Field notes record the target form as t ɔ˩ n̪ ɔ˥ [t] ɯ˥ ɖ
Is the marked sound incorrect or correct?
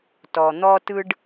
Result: correct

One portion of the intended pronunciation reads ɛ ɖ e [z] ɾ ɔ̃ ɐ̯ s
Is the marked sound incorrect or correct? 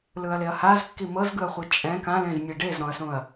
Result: correct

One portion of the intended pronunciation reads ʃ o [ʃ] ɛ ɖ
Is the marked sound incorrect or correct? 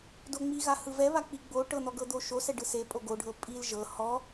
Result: incorrect: s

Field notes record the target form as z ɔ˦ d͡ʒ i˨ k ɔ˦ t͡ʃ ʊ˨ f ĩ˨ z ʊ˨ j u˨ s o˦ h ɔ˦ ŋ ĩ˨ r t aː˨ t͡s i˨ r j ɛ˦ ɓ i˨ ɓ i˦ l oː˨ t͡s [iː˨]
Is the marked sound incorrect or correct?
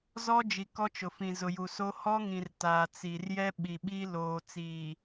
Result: correct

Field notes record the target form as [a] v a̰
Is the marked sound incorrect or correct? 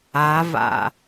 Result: correct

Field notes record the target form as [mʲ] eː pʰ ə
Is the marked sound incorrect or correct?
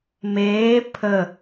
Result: incorrect: m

